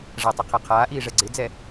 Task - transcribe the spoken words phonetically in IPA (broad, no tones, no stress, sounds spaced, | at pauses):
ʐ a tˤ i qʰ ɛ qʰ aː ʔ iː ʐ ɛ ɡ͡ǀ ɪ d͡z ɛ